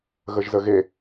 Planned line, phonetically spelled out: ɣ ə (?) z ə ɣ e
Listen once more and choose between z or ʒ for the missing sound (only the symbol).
ʒ